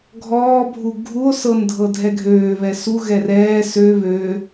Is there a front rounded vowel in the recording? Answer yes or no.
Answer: yes